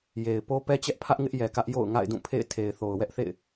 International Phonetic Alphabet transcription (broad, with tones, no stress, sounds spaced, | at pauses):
j e˨ ɪ̯ p o˦ p ɛ˦ t͡ɕ ɛ˦ ʔ pʰ ä˦ ʔ ŋ ɪ˦ ʔ j ɛ˨ k ä˦ ʔ j o̰˦˨ ʊ̯ ŋ a̰˦˨ ɪ̯ d ũ˦˨ pʰ ḛ˦˨ ɪ̯ tʰ e˨ ɪ̯ θ o˨ ʊ̯ w ɛ˦ ʔ θ ḛ˦˨ ɪ̯